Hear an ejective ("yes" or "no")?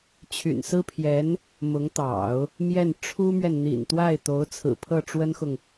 no